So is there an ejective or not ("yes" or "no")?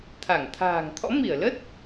no